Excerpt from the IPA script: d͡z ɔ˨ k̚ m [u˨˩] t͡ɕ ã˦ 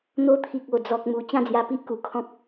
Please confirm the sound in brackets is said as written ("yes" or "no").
no